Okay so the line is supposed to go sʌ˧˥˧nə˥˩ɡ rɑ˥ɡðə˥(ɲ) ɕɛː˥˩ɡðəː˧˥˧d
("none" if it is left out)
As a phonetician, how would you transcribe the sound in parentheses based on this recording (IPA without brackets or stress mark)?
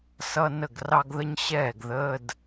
ɲ